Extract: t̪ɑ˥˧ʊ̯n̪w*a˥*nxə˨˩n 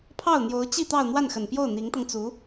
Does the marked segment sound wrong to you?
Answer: yes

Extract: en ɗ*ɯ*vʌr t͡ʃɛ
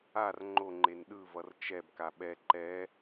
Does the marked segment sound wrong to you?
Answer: no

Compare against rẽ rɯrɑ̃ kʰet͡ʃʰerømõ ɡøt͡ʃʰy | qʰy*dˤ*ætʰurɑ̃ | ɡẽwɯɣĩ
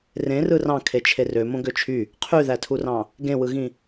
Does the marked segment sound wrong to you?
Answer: yes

